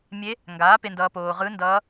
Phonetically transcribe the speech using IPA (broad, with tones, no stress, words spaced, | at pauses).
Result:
mʲe˧˥ | ŋɡaː˩˥pe˨ndʌː˨ poː˨ʁɯ˧˥ndʌː˧˥